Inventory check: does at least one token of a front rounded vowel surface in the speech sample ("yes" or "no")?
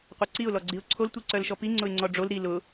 yes